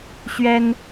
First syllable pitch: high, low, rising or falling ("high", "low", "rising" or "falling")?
high